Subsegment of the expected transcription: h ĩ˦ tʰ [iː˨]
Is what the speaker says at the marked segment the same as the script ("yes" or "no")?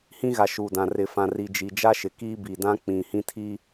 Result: no